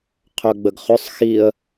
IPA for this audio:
qʰ œ ɡ͡b ə ɡ χ ʏ sˤ x i ə̯

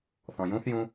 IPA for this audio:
θ ɔ̃ j ũ θ j ũ

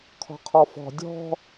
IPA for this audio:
kʰ ɔ̤ qʰ ɔ f ɔ̤ dʲ ɔ̤

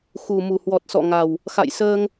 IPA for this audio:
x u˨˩ m u˨˩ h w ɔ˨˩ t̚ s ɔ̰˧˨ ŋ a˨˩ w | x a̰˧˨ j s əː˧ ŋ

